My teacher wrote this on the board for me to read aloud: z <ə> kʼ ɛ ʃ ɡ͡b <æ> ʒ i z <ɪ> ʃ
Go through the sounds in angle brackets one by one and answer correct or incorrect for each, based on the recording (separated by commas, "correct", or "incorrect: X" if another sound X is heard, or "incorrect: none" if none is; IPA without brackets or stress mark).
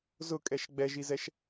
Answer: incorrect: ʊ, incorrect: ɛ, incorrect: ɛ